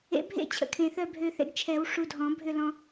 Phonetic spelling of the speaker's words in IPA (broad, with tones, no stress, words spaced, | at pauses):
ḛ˨˩˦bʱḛ˥˨ t͡ɕʰə̰˧kʰẽ˨˩ θœ˥˨bʱø˧θḛ˧ɡ t͡ʃʰɛ˨˩˦w ʂu˧dʱɔ̃˨˩˦bʱʏ˥˨ lɔ̃˧